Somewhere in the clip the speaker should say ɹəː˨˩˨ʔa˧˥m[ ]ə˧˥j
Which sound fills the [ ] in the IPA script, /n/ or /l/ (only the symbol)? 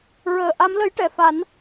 l